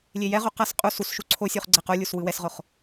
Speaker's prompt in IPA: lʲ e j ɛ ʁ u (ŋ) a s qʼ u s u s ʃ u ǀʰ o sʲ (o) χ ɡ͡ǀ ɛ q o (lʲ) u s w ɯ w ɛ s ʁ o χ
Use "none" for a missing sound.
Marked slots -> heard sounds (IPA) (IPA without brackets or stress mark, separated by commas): q, u, lʲ